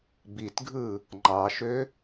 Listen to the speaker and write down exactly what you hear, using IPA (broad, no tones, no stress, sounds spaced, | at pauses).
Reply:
b i t ɡʱ ɯ | ŋ͡ǃ ɑ ʃ ø